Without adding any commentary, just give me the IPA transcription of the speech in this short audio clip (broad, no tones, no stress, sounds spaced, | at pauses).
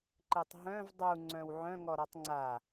ǃ e tˤ ɦ œ̃ v dˤ u ŋ͡ǀ œ̃ w ʕ œ̃ ŋ ɔ ɾ ɔ tˤ ŋ͡ǀ a